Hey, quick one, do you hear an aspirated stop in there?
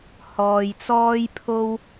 yes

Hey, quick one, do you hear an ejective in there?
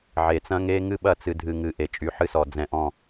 yes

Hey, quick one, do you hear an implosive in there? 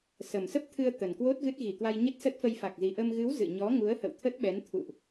yes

